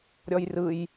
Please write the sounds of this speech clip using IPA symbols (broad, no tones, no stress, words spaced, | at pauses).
ɾʲɔjrɯj